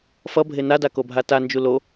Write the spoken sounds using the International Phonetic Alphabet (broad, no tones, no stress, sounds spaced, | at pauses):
f ʌ bʱ e n a d a k o bʱ a t a n d͡ʒ u l o